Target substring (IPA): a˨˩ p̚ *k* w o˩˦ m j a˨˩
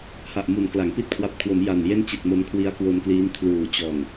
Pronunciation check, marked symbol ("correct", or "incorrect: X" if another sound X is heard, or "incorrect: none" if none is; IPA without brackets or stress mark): incorrect: kʰ